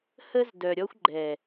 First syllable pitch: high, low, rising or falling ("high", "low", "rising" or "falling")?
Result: high